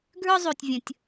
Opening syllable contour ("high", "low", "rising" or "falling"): high